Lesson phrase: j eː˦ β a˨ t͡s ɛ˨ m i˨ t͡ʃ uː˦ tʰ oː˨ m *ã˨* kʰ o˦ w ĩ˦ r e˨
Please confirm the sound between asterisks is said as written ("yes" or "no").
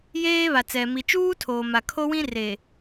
no